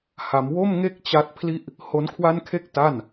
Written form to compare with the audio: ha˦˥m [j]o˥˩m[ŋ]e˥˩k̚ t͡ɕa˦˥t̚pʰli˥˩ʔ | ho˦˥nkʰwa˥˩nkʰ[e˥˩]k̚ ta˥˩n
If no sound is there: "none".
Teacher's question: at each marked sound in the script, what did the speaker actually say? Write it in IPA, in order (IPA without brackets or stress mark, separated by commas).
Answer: w, ŋ, e˥˩